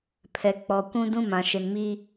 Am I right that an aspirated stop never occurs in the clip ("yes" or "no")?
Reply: no